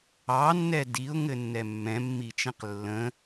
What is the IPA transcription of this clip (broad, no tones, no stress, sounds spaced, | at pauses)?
ɑ nː ɛ d i ʊ̯ ŋ ɘ nː ɛ mː ɛ̃ mː i t͡ʃ ɛ̃ q lː ə̃